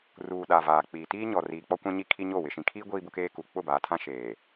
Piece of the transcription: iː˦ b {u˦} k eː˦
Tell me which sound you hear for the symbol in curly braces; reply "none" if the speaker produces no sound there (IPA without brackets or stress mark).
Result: ʊ˦